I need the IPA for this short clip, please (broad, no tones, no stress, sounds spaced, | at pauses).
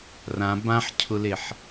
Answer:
r ã b ã ħ cʰ ʊ l e ħ